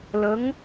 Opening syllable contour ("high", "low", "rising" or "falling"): rising